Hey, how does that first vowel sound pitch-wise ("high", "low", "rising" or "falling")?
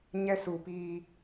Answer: high